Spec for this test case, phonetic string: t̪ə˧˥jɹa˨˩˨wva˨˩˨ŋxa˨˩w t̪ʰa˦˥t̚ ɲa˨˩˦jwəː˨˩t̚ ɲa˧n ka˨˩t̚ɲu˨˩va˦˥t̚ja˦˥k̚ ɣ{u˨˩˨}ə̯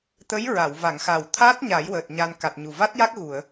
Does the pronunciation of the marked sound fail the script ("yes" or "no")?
no